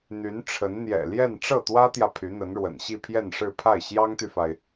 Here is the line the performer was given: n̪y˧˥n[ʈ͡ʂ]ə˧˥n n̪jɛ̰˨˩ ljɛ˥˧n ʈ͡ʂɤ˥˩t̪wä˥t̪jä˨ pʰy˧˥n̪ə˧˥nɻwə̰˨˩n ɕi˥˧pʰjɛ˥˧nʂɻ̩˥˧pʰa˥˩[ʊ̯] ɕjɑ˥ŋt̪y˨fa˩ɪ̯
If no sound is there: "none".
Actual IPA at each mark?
ʈ͡ʂʰ, ɪ̯

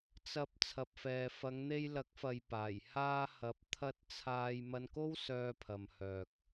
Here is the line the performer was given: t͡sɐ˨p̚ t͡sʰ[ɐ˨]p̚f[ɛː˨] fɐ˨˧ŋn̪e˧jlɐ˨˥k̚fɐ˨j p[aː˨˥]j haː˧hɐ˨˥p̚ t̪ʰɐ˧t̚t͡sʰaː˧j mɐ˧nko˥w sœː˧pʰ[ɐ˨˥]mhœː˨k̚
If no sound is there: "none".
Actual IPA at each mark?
ɐ˨, ɛː˨, aː˨˩, ɐ˨

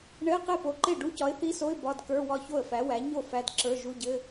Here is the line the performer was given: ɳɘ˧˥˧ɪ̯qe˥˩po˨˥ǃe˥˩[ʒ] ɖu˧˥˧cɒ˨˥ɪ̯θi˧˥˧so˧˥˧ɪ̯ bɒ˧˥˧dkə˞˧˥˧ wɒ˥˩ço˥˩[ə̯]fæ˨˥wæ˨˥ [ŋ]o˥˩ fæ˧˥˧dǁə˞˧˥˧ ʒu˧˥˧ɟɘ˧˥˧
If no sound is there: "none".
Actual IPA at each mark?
none, ə̯, ɲ

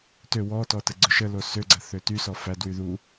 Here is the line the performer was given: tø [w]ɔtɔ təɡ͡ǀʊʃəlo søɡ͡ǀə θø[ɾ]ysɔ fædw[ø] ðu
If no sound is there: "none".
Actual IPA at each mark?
w, t, y

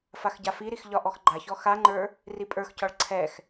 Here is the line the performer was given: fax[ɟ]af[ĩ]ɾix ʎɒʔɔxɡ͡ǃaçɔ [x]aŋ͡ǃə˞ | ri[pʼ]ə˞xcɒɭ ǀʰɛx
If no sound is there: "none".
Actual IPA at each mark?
ɟ, i, x, pʼ

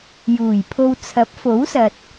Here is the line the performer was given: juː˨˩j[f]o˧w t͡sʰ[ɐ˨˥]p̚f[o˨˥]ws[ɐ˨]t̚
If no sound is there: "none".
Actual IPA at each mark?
pʰ, ɐ˨˥, o˨˥, ɐ˨

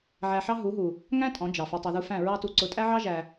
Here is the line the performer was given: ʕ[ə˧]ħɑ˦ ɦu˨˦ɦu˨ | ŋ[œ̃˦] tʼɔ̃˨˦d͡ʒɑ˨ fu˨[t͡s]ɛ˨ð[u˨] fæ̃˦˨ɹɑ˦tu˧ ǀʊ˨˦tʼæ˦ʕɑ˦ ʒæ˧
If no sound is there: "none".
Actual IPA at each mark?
æ˧, æ̃˦, tˤ, u˧

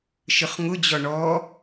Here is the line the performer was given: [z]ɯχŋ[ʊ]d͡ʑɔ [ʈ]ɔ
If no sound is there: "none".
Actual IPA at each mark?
ʃ, ʊ, ɳ

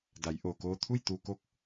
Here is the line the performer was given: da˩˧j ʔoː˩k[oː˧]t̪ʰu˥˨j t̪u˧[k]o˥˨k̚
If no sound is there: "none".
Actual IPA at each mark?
oː˧, k

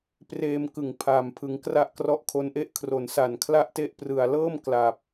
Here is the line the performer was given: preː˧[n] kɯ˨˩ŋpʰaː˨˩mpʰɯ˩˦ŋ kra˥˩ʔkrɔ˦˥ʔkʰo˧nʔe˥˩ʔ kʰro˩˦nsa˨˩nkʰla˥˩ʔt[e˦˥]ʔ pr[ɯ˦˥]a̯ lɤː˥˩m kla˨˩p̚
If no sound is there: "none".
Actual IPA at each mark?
m, e˥˩, ɯ˨˩

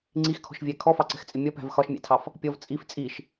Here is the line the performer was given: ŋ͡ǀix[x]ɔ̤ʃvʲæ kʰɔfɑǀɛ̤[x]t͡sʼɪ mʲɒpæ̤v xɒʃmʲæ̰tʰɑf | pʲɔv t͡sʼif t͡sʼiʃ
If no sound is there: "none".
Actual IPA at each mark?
kʰ, x

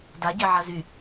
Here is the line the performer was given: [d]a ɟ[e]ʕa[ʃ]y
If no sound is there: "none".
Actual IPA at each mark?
d, e, z

